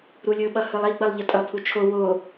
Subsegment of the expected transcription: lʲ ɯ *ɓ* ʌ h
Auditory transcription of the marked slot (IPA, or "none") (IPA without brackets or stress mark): ɓ